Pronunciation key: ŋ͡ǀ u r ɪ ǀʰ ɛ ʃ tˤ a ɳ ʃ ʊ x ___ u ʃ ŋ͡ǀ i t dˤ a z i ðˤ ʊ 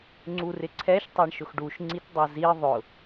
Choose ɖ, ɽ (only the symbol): ɖ